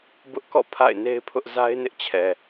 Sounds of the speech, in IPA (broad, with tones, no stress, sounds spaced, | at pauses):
b ʊ˦ ʔ k ɔ̰˦˨ pʰ a̰˦˨ ɪ̯ n e˦ ɪ̯ pʰ ʊ˦ ʔ z a˦ ɪ̯ n ɪ˦ ʔ t͡ɕʰ ɛ˨